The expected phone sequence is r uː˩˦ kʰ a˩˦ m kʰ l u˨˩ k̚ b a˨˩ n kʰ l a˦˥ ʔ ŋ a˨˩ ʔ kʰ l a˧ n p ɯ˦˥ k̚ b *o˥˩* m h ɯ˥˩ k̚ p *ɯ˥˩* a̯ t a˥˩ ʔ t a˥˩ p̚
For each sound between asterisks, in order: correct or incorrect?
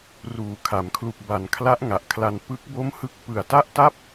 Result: correct, incorrect

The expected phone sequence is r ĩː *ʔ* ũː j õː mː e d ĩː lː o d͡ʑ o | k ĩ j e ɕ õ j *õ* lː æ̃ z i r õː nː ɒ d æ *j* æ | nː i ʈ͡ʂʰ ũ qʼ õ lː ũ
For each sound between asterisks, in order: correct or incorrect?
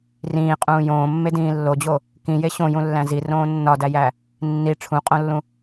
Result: incorrect, incorrect, correct

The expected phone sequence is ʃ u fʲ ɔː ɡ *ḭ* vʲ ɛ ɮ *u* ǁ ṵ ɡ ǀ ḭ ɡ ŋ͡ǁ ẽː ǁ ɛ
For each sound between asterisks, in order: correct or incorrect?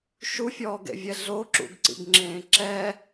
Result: incorrect, incorrect

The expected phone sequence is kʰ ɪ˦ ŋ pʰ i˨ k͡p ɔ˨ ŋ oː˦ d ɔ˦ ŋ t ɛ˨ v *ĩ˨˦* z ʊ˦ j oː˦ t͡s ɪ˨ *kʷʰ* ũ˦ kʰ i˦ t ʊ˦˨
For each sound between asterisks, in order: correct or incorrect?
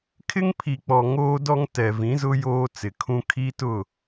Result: correct, incorrect

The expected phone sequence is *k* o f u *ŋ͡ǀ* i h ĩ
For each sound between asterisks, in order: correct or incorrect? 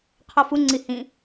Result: incorrect, correct

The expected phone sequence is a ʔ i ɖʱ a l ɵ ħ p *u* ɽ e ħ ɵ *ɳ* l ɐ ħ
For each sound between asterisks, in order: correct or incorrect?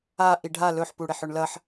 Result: correct, correct

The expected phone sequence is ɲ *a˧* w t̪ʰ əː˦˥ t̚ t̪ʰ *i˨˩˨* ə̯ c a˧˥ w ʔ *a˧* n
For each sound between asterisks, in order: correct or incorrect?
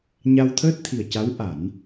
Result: correct, incorrect, incorrect

